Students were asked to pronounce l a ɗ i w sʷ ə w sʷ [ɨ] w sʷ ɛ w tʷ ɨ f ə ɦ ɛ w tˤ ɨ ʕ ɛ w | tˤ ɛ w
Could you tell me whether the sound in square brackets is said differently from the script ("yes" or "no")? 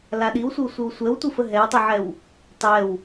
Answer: no